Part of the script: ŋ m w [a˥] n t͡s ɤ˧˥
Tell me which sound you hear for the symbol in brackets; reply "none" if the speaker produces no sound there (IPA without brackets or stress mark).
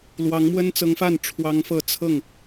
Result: ə˥